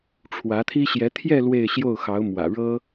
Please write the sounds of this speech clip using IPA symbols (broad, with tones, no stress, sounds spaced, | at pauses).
ʈ͡ʂʰ w ä˧˥ t̪ʰ i˥ ɕ j ɛ˧˥ t̪ʰ j ɛ˥˧ l w e˥˧ ɪ̯ ɕ j o˥˩ ʊ̯ x ɑ˧˥ ʊ̯ m w ä̰˨˩ ɻ ɤ˥